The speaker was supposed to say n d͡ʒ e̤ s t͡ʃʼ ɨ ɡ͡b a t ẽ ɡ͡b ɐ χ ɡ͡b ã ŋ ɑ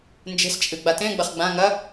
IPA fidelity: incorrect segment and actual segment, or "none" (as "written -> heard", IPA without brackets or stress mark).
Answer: ɑ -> ɐ